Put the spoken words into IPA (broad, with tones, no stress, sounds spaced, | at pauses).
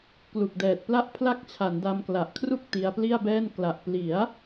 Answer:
k l u˨˩ k̚ d ɛː˨˩ t̚ p l a˦˥ ʔ pʰ l a˦˥ k̚ t͡ɕʰ a˩˦ n d a˧ m k l a˨˩ ʔ kʰ r u˥˩ k̚ t i˧ a̯ p l i˥˩ a̯ b ɛː˥˩ n k l a˨˩ ʔ p l i˩˦ a̯